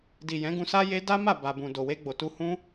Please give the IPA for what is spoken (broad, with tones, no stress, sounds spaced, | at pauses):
d i˨ j ɛ̃˨˦ ɡ ũ˧ s a˦ j e˦ d a˦ m a˦˨ b a˨ b ũ˨ d o˨ w e˧ ɡ͡b o˨ t u˧ h ũ˦